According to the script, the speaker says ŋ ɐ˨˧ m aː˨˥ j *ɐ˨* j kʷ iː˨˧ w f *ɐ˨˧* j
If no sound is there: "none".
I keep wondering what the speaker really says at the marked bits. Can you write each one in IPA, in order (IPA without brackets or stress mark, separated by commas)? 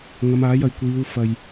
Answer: ɐ˨, ɐ˧